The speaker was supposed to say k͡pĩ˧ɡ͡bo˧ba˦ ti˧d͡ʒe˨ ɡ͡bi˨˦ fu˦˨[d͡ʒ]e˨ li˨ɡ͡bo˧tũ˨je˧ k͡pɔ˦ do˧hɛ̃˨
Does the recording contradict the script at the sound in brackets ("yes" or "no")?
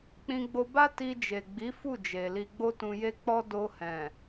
no